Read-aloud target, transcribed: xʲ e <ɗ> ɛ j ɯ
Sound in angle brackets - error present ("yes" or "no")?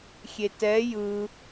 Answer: yes